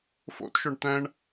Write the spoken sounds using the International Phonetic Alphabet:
fo̰tʃʊɳ tæ̃ɳ

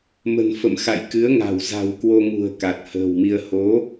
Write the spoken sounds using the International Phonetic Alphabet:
mə̤˨˩nfə̰˧˨mxa̰˧˨jkɨ˨˦ə̯ ŋa̤˨˩w za̤˨˩wkwo˧ŋṳ˨˩ə̯ ka˨˩t̚hə̤ː˨˩wmi˧ə̯ ho˨˦

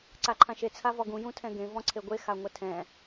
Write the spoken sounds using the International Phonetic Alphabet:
ǀaǃʰãʃe t͡sʰavɔɡũ jũtʰɛ̃ɡẽ vɔ̃ǀʰeɡʷe xaŋʷɛtʰɛ̃

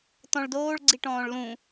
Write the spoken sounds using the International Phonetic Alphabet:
tɔ̃ɭdoːɭɡ͡ǀi ʈɔ̃ːɭlũ

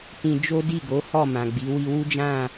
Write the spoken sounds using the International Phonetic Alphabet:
tĩ˧ d͡ʒo˦di˦˨ɡo˨˦hɔ˦˨ mã˨ɡ͡bi˨˦ wi˧wu˦d͡ʒã˦˨

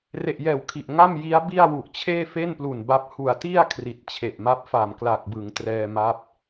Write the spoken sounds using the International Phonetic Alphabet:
re˨˩ʔjɛː˨˩w kʰi˨˩ʔŋa˥˩mji˦˥a̯ bi˥˩a̯wu˨˩ʔ t͡ɕʰeː˥˩fe˥˩nplu˨˩n ba˦˥p̚ hu˨˩a̯ti˥˩a̯ kʰri˨˩t̚t͡ɕʰe˨˩ʔma˦˥p̚ fa˨˩mklaː˨˩k̚bɯ˩˦ŋ trɛː˧maː˦˥p̚

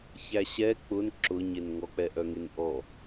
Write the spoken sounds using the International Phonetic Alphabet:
çæɕɛ k͡pʊn ǁʊɲenŋɔ k͡pɛʔœŋenʔɔ

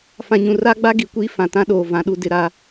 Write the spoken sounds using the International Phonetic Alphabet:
fã˨ɲũ˨ra˦ɡ͡ba˦ ɡi˨kʷiː˦ fã˨tã˦ɗoː˨ vã˨ɗu˨ dɪ˨ɾa˨

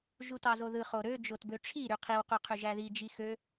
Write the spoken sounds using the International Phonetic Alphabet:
ʒutɑzoðɯ χoɾø d͡ʒotbøʈ͡ʂʰi ɾyqʰiw qyqʰyʒæði d͡ʒixø

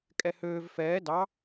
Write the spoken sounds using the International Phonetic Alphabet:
kʼɛhøːv fɛː dɑ

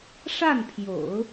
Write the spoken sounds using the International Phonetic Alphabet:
ʂa˥˩npʰjo̰˨˩˦ʊ̯

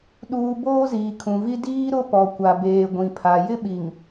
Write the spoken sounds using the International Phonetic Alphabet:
ɗuː˨ boː˦ziː˨kʰũ˨vi˦ diː˦ɾʊ˦pɔ˨kʷa˨ beː˨ ɡʷĩ˨pʰa˨ jɪ˦ɓi˨ŋ

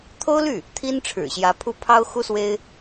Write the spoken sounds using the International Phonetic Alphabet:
t̪ʰo˥ʊ̯ly˥˩ | t̪ʰi˥nʈ͡ʂʰɻ̩˨˩ɕjä˧˥ pʰu˥˩ pʰɑ˥ʊ̯ xu˥swe˥ɪ̯

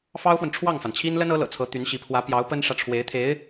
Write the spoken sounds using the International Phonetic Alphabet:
fɑ˥ʊ̯fwə˨n ʈ͡ʂʰwɑ˥˩ŋfa˩nt͡ɕʰi˥n lə˥nɤ˧˥ lɤ̰˨˩t͡sʰɤ˧˥t̪y˧˥nɕi˧˥ pʰwä˧˥pjɑ˧˥ʊ̯ pə˥nʂä˨ʈ͡ʂʰwe˧˥ɪ̯t̪ʰe˧˥ɪ̯

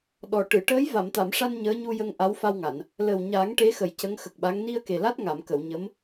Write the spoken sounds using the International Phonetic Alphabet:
ɗɔ˨˩ʈɨ˨˩˨ ʈəː˧˥j va˨˩˨mt̪a˨˩˨mʂa˧n ɲəː˧˥ɲu˧jə˧ŋ ʔa˧˥wfa˧wŋa˨˩˨n | lə˨˩wɲa˨˩˦ŋ ʈe˧˥xə˨˩j cə˧˥ŋxə˨˩k̚ɓa˧˥ŋ ni˧ə̯ke˨˩la˦˥t̚ ŋa˨˩˨mkə˨˩˨wɲə˧˥m

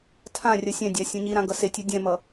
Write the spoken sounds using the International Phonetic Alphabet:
tʰãrʲʌ sʲɛ̃dʲa sʲũɲiɾã ɡʌsetʲu dʲɛ̃mʌ

